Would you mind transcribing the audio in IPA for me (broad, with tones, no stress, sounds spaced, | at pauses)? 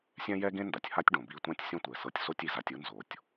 sʲ ɛ̃˥ j ɛ˥ ɡ ẽ˥ n d a˩ tʲ h a˥ tʲ ɖ õ˩ b i˧ tʷ ã˥ tʲ sʲ õ˥ tʷ ɛ˩ s ɤ˧ tʲ s o˥ tʲ i˩ z a˧ tʲ ɯ˥ n z o˩ tʲ